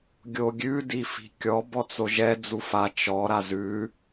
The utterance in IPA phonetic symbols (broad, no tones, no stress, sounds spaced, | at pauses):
ɡʲ o ɡʲ ʉ d i f i̤ kʲ ɔ b ɔ t͡s o ʒ ɛ d͡z u f a t͡ʃ ɔ ɾ a z ʉ